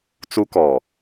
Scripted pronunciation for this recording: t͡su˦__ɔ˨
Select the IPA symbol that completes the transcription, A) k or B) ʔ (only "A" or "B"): A